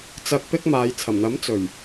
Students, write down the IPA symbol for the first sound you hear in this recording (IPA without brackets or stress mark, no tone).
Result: t͡s